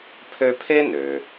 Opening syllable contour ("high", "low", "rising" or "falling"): high